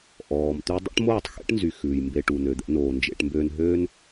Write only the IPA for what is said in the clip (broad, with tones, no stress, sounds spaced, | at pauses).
ʔ ɔː˨ m t̪ y˦ dˤ o̰˦ ʈ m oː˦˨ tˤ x ḛ˦ ʈ n z y˨ x ʉː˨ j m b e˧ ʈ u˨ n ø˨ d̪ ɛ̰˧ n oː˨ n d͡ʒ ḛ˧ ʈ m b øː˧ n ɦ øː˦ n